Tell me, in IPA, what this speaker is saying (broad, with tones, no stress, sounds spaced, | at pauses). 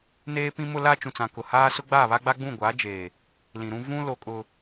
n eː˦ p ĩ˦ m ʊ˦ l a˦ t͡ʃ ũ˨ t͡s ã˨ k ʊ˨ h aː˦ s ʊ˦ ɡ͡b aː˦˨ β a˦ ɡ͡b a˦ ɡ͡b ũ˦˨ ɡʷ aː˨˦ d͡ʒ eː˨ | l ĩ˨ ɾ ũ˦ v ũ˦ l o˦ kʼ ʊ˦